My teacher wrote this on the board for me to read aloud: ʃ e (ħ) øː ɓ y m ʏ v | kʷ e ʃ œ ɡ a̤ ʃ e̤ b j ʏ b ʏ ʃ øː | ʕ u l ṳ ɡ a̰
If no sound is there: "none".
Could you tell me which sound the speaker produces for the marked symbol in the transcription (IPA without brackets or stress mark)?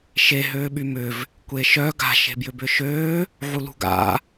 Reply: ɦ